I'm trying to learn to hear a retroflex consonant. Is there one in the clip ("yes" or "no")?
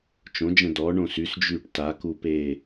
yes